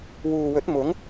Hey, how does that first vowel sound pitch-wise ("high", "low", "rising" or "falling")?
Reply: low